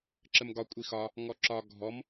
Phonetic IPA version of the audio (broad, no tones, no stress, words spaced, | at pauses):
ǁəmɡɒ kʷʼixɒ | ŋɔǁɒ ɡʱɔm